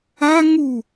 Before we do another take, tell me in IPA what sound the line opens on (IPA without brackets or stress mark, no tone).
a